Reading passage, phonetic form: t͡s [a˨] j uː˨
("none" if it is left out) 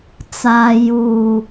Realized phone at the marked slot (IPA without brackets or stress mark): aː˨